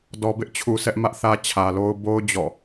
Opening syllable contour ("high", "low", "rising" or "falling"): low